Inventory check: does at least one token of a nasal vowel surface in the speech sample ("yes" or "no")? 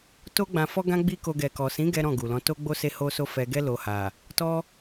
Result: yes